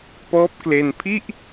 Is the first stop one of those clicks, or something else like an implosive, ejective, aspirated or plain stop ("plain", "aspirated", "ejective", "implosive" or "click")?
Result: plain